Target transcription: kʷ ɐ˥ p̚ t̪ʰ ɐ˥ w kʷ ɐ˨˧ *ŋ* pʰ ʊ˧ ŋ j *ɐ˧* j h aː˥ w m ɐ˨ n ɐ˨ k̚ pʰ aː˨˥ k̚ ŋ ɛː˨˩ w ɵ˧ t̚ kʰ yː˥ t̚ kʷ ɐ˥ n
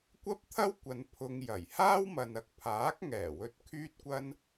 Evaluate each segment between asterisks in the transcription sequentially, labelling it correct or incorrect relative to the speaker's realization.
incorrect: n, incorrect: ɐ˨˩

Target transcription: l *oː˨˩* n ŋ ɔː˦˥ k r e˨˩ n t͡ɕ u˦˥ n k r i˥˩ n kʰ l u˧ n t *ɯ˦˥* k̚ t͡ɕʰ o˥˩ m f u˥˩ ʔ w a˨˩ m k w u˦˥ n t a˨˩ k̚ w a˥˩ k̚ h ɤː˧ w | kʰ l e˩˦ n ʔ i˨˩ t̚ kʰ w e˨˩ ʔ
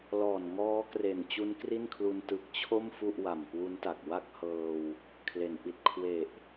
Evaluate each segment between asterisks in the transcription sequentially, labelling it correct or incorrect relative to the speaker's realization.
incorrect: ɔː˨˩, incorrect: ɯ˨˩

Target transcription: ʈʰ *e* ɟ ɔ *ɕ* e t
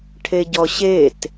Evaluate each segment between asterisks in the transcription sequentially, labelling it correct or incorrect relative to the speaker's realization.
correct, correct

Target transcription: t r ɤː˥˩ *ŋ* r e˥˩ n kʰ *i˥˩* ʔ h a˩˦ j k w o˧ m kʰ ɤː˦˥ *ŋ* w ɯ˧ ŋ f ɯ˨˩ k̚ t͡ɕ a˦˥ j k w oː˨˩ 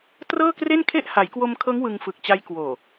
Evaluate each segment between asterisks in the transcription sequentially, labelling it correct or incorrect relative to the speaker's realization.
incorrect: k, incorrect: e˥˩, correct

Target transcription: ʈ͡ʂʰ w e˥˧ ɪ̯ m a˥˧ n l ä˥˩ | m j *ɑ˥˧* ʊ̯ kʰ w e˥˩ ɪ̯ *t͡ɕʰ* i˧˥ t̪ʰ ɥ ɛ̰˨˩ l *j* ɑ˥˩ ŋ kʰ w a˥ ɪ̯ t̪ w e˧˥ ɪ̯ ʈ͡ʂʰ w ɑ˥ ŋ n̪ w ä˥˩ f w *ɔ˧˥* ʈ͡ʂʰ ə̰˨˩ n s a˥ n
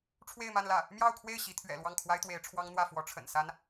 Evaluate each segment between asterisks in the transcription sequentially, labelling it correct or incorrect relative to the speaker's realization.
correct, incorrect: ɕ, incorrect: w, correct

